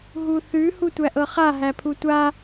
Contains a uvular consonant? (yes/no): yes